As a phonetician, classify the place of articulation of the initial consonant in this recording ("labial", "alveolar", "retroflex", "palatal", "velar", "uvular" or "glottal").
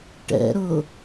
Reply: retroflex